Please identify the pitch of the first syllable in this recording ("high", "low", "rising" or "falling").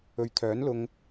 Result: low